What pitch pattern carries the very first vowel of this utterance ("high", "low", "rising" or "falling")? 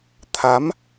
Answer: rising